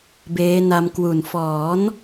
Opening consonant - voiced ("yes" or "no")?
yes